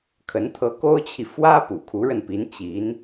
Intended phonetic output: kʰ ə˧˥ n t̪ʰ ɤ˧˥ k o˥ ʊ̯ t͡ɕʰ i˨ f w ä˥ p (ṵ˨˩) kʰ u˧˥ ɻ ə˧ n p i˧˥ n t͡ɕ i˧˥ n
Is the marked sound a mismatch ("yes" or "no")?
no